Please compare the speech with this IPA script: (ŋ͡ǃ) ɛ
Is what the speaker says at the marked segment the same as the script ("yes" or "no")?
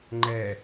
yes